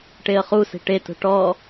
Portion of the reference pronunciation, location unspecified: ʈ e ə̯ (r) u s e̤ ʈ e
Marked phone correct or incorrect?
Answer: incorrect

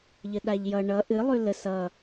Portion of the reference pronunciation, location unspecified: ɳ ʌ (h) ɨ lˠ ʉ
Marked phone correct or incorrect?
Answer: incorrect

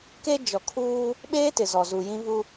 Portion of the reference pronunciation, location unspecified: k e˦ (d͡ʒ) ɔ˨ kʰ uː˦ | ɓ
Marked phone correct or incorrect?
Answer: correct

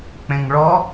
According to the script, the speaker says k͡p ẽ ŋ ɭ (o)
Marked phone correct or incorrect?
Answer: incorrect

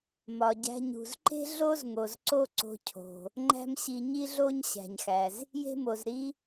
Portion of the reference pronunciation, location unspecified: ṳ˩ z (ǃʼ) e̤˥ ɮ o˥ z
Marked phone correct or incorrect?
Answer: incorrect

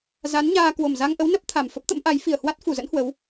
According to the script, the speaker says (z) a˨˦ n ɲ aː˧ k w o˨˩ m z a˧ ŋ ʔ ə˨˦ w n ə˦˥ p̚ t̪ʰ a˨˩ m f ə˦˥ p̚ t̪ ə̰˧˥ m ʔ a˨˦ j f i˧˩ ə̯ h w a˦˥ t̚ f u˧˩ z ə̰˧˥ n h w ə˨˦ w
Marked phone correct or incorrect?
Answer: correct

